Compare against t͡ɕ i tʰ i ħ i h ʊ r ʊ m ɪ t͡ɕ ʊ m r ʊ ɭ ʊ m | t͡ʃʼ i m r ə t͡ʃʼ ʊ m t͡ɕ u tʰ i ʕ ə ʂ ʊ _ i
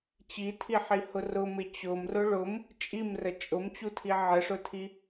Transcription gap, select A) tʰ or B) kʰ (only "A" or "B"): A